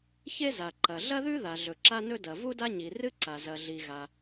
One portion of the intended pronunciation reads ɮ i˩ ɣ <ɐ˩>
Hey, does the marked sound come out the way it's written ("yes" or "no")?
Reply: no